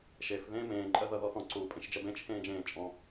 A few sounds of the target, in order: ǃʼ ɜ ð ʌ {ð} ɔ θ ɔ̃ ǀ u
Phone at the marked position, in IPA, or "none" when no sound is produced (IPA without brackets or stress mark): ð